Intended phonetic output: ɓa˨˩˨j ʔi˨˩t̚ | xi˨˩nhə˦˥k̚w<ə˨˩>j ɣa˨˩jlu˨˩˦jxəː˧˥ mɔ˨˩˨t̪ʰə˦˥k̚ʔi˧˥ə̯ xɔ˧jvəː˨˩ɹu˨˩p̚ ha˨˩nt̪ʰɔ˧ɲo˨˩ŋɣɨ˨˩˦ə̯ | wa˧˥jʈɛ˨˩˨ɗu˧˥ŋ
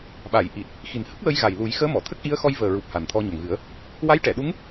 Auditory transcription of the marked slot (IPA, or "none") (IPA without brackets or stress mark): ə˧